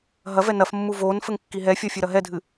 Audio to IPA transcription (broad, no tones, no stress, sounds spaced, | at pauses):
ɦ ɐ v ɛ n ɐ f mː u v o n f ɘ ŋ kː i ɦ ɛ fʲ ɔ fʲ ɘ ɾ ɐ ɦ ɛ dʱ ɨ